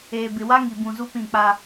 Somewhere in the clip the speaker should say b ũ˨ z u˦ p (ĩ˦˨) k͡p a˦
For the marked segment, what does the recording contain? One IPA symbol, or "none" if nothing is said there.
ĩ˦˨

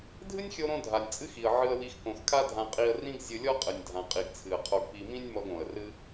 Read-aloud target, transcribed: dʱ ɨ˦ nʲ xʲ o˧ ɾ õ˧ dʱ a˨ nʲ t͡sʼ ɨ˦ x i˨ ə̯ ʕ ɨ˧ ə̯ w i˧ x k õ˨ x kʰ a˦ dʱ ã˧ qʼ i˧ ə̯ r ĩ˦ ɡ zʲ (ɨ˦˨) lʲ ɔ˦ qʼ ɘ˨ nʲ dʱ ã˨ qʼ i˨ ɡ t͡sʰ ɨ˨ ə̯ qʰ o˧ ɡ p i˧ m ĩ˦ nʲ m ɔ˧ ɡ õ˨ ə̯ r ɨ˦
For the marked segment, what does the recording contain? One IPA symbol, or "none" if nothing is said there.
ɨ˧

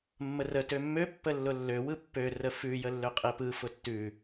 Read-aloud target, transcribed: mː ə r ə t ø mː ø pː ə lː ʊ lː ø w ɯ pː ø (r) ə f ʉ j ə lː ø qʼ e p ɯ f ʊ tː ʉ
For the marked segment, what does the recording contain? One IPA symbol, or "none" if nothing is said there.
r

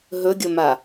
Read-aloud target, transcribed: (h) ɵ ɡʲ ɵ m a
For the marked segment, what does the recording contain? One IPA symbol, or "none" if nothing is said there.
ɦ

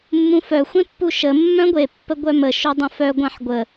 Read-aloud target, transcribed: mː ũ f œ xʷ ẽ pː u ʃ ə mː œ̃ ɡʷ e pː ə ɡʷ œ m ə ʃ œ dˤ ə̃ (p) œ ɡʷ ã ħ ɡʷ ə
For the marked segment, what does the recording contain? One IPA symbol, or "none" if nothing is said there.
f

